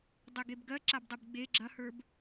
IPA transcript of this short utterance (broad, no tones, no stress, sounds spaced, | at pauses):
dˤ e ɡ e b ɡ ɜ ǁ a b dˤ e b ɡ͡b e ɡ͡ǁ ɐ h ə˞ b